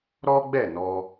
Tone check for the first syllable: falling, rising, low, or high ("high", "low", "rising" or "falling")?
high